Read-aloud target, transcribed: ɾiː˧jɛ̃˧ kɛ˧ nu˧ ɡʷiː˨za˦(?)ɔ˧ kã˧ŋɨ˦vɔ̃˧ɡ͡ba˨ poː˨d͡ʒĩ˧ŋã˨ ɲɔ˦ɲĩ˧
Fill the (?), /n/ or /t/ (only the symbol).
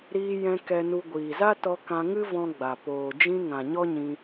t